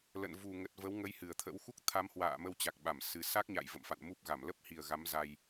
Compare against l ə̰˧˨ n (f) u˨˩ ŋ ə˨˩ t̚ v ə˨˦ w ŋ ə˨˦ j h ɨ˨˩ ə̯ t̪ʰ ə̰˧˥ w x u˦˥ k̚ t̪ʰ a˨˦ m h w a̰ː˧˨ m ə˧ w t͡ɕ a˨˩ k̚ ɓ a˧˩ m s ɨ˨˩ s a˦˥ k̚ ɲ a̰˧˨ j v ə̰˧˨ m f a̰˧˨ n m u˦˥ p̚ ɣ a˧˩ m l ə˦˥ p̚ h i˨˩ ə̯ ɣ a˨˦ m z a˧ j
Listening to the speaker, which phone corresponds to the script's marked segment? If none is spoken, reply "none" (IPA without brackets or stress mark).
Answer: v